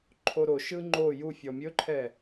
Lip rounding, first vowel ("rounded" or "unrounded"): rounded